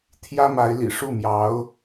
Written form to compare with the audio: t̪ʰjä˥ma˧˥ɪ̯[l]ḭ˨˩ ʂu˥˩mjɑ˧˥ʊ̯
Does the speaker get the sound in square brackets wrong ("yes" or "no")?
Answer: no